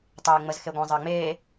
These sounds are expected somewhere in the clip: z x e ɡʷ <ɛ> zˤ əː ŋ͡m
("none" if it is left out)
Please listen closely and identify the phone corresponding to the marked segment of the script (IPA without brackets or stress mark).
ɛ̃